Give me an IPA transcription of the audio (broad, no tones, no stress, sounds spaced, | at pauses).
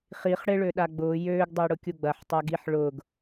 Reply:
χ i χ ɽ ɪ ɭ ø ɗ a ɡ͡b ʊː j øː ɡ dˤ ɪː ɽ ʊ kʲ u ɡ͡b ɐ ħ tˤ a ɡ i ħ ɭ ʊː ɡ